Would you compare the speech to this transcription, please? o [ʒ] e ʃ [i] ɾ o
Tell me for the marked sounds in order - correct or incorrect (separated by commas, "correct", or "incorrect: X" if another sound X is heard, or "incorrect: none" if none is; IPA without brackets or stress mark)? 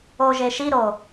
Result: correct, correct